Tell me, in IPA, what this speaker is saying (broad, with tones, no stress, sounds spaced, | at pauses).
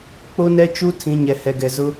k͡p o˦ n ɛ˦ t͡ʃ u˦ tʰ ĩ˨˦ ɲ ɛ˨ h ɛ˨ ɡ ɛ˨ z ʊ˦